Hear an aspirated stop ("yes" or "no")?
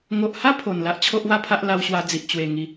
yes